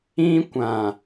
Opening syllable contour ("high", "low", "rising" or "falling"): high